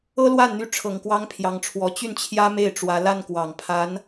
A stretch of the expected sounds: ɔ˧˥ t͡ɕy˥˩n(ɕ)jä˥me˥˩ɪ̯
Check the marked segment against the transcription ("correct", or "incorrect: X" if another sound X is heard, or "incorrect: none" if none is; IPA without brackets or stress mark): incorrect: t͡ɕʰ